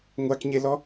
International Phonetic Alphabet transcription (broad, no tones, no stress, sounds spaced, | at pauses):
ŋʷ a k ɲ e l ɔ